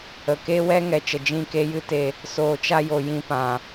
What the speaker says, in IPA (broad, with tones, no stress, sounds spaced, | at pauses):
ə˨ k e˦ w ɛ˦ ŋ ɛ˨ t͡ʃ ə˨ d͡ʒ ĩ˦˨ k e˦ j ɨ˦ t e˧ | s oː˨ t͡ʃ a˧ j o˨ j ĩ˧ p ã˨